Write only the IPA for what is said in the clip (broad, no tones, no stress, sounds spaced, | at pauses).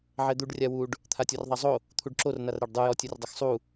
ʕ ɛ d̪ u ɖ rʲ a w u ɖ | t̪ʰ a tʲ ɔ r ðˤ a zˤ o | t̪ʰ u ɖ ǁ o r n a r ɾ a ɖ dˤ ɯ j ɔ tʲ ɯ r dˤ ɐ x sˤ u